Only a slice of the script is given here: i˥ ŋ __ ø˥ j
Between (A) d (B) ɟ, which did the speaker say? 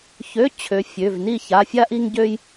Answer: B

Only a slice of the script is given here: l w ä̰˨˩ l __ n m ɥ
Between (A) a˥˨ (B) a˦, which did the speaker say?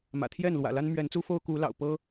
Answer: B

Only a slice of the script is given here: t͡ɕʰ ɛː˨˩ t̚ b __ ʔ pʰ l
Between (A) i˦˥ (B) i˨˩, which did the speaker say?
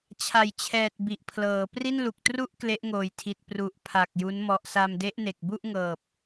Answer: B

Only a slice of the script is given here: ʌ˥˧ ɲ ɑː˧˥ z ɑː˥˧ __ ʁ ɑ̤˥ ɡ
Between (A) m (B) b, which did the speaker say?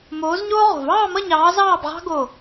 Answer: B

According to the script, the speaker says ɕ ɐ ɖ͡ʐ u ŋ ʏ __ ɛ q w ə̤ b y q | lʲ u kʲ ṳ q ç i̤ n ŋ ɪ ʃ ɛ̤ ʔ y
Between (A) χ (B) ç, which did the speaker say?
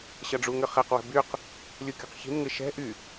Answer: A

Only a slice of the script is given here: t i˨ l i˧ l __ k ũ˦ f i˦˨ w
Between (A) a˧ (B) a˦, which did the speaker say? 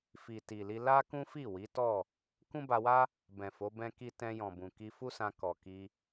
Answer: B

